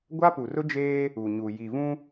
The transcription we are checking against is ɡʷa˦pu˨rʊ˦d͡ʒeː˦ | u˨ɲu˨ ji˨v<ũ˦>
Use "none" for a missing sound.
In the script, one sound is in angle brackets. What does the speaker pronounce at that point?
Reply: ũ˦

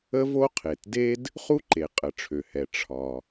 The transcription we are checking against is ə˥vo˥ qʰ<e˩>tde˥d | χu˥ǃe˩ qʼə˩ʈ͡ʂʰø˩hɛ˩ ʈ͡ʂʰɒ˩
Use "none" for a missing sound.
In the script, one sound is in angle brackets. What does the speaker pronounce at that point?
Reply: e˩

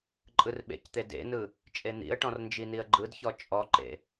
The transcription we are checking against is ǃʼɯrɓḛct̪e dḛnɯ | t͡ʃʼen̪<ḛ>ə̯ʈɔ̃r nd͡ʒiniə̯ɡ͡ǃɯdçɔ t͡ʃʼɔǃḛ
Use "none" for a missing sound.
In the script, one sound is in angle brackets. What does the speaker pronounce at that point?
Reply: ḭ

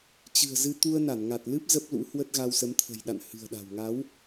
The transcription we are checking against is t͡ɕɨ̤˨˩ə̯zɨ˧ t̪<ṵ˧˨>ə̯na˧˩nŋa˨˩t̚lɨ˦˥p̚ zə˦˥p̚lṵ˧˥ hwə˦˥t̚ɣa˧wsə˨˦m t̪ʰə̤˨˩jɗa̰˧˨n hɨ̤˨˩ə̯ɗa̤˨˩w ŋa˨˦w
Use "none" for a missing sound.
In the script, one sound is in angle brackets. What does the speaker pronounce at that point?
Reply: u˧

